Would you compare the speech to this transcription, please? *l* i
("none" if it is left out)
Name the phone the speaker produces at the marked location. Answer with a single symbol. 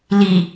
l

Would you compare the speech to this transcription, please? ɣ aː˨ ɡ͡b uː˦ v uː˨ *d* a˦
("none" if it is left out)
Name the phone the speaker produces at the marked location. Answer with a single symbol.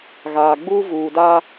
d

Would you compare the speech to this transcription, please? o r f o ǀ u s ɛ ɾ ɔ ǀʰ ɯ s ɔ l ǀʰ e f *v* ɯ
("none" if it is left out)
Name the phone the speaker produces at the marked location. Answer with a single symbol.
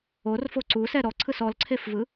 v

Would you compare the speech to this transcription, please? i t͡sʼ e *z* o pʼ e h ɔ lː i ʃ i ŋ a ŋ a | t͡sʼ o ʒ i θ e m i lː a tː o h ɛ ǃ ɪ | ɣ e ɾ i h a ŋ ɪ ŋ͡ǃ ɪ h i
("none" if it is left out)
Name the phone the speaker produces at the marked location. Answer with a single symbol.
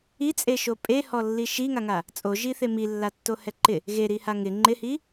ʃ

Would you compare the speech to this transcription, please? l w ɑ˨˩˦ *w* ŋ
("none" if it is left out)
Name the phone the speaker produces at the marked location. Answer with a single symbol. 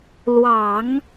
none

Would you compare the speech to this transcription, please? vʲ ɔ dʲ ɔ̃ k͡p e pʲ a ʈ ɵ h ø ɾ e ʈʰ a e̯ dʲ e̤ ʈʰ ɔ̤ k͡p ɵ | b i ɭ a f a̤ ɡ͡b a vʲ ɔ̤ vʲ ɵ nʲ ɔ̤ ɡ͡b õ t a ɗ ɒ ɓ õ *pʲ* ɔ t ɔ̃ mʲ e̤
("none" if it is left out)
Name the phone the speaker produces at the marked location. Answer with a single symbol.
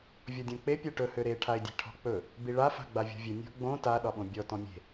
bʲ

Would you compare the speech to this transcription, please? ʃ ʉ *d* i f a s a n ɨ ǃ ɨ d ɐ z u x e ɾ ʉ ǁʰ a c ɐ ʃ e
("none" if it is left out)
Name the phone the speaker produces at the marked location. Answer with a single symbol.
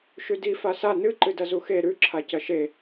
d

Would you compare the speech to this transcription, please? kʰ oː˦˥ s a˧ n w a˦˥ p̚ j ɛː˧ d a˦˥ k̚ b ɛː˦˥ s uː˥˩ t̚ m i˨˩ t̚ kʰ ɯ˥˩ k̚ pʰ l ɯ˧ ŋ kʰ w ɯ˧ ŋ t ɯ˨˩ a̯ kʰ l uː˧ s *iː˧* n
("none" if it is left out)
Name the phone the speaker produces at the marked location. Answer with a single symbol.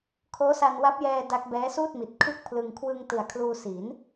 iː˩˦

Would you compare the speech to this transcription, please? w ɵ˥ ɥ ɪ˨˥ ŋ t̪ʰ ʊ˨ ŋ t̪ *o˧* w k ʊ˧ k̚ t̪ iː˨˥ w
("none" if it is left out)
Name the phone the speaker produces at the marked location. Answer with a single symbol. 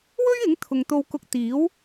o˧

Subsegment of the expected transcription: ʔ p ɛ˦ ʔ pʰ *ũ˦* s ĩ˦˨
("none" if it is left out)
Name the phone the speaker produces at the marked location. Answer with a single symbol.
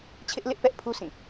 u˦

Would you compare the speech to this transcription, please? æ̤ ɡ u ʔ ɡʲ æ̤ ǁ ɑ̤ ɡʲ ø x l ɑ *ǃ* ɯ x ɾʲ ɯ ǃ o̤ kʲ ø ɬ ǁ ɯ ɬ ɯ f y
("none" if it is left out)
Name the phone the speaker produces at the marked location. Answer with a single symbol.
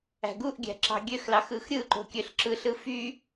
x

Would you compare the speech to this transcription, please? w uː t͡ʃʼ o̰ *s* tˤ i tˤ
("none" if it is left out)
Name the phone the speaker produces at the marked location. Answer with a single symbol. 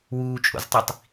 z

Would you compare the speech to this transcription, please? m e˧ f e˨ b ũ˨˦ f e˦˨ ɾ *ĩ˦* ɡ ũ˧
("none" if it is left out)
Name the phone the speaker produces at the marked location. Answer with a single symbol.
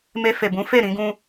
ĩ˧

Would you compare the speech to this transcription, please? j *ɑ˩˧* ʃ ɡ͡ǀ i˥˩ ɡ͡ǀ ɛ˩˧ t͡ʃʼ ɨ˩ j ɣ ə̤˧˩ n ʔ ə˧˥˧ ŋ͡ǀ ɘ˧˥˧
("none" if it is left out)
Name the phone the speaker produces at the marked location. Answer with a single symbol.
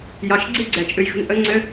ɑ˩˧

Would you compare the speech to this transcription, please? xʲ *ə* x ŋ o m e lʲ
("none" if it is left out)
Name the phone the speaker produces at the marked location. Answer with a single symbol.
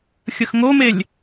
ə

